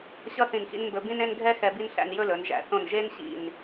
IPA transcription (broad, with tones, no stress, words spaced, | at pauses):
ɕʌ˥ θĩ˧˩n xḭ˥n mbɵ˧bĩ˥nẽ˥n ɡʱɛ˥ xɛ˧ bi˧n ɬæ̰˧n jɵ˥lɵ˩˧nʒæ̰˩˧ θõ˧˩nʒe˥nɕḭ˧˩n